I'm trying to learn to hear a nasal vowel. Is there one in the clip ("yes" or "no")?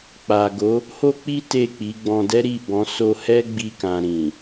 yes